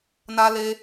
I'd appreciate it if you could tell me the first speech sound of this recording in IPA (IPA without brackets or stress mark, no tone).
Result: n